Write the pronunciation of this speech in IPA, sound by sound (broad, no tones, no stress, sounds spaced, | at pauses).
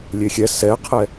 lʲ e xʲ ɛ s ɛ qʰ ɛ